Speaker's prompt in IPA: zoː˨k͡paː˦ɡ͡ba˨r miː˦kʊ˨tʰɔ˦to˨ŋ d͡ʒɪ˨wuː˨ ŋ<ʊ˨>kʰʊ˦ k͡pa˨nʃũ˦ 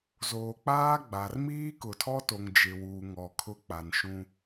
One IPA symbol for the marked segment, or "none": ɔ˨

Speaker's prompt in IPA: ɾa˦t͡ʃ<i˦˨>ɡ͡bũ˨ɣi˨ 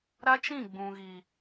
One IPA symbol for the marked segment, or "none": ĩ˦˨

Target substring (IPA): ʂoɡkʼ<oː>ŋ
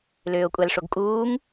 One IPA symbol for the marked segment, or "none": uː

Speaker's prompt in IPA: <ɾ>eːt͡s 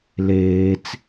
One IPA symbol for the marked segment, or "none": l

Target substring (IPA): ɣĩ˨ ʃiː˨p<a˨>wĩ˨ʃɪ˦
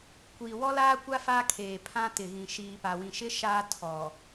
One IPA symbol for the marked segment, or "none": a˨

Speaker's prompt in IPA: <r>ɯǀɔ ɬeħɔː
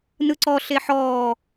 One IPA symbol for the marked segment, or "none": n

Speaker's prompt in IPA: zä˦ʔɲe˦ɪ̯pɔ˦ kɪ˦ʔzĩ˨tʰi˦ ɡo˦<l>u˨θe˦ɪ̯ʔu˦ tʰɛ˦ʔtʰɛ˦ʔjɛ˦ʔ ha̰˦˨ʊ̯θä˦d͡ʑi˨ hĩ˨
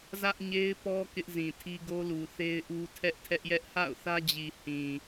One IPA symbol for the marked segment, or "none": l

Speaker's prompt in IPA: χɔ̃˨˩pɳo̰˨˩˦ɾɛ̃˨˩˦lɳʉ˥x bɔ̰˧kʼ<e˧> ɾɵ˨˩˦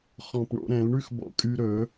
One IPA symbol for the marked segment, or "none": y˧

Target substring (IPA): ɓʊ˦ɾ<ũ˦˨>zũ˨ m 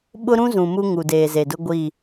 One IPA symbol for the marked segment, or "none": ũ˦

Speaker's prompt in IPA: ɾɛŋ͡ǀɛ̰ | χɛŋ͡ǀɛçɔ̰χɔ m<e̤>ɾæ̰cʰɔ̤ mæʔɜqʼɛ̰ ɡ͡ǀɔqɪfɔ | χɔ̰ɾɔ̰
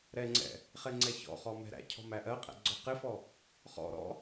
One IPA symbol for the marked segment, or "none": ɛ̤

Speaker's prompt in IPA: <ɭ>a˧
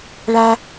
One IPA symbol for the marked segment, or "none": ɭ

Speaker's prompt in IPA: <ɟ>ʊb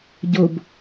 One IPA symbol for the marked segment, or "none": ɟ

